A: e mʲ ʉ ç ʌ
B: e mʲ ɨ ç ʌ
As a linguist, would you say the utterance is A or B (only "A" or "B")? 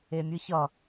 B